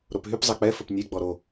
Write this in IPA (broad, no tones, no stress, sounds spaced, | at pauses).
ɾ o p ɦ y p zˤ ɛ k͡p ɛ f ə p nʲ e ɡ͡b ɔ ɾ o